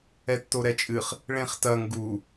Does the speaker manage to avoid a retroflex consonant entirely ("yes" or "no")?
no